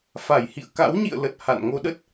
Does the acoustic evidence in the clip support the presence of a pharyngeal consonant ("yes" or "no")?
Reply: no